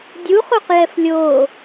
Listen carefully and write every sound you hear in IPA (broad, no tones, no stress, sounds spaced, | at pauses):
dʲ u χ u q j ɛ f lʲ oː